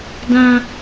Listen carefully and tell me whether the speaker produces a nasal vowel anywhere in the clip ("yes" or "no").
yes